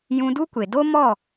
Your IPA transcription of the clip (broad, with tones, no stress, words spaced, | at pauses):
jũ˧du˦kʷe˨ do˦mɔ˦˨